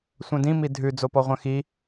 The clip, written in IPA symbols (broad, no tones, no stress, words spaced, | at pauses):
sʷœ̃dĩ midʱʉ d͡zopɔʁʷœ̃xi